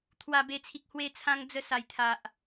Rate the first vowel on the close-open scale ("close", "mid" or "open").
open